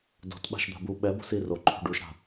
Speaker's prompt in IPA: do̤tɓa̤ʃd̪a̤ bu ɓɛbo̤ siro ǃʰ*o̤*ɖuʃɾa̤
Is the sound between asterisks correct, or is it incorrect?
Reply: incorrect